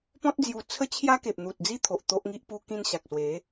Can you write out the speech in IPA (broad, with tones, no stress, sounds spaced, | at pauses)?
p ɔ̃˦ t̚ d͡z j u˧ t͡sʰ ə˦ t͡ɕʰ j a˦ k e˨ p̚ n̪ u˨ t̚ d͡z i˦ t̪ʰ o˨ ʔ t̪ o˦ ʔ ŋ i˦ ʔ p u˧ k ĩ˧ n ɕ a˨ k̚ s w e˨˦